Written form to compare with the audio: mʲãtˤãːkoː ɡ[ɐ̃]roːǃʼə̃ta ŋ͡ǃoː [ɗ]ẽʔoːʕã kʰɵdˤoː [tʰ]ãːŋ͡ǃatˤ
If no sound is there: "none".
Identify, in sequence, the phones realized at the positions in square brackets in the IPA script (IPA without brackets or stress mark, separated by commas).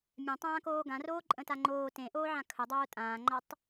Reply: ã, t, tʼ